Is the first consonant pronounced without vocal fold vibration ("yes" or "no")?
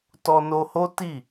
yes